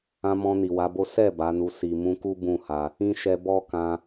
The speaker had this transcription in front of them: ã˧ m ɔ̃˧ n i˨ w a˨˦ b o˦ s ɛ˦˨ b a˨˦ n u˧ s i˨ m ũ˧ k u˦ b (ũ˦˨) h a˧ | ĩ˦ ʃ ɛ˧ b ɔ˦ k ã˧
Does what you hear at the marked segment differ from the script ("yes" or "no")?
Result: no